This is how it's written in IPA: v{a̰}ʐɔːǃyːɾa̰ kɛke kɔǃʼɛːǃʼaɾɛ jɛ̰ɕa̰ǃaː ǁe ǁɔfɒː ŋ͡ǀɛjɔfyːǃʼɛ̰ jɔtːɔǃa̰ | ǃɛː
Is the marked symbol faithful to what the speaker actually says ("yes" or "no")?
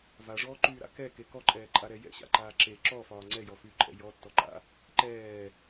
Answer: no